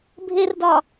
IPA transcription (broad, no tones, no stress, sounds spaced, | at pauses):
bʱ e r d ɒ